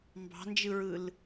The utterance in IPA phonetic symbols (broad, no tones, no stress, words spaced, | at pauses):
mbɑ̤nd͡ʒɯɹɯl